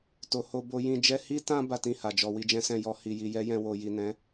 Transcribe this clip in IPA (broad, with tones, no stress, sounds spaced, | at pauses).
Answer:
t o˨ h o˧ b o˧ j ĩ˧ d͡ʒ ɛ˧ h i˧ t ã˧ b a˦ t ĩ˦˨ h a˨ d͡ʒ ɔ˧ w i˧ d͡ʒ ɛ̃˦ s ɛ̃˦˨ j ɔ˧ h i˨ j i˨ j ɛ˨˦ j ɛ̃˧ w o˨ j i˨ n ɛ̃˨˦